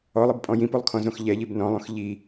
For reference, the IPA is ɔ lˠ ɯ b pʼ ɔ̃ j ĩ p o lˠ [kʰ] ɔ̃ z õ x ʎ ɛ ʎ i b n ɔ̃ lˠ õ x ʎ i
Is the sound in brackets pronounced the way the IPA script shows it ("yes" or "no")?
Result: yes